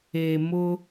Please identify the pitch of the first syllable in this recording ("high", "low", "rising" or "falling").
low